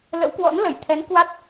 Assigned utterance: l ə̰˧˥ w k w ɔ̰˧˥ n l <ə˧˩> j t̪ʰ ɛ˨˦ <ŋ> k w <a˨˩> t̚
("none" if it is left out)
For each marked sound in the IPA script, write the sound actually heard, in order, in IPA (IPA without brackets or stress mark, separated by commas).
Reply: ə˧˩, n, a˦˥